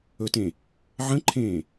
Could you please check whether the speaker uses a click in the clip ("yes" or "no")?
yes